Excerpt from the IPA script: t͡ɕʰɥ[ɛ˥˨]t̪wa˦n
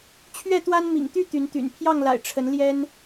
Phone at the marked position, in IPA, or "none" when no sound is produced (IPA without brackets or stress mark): ɛ˥˨